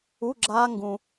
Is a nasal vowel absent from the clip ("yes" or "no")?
no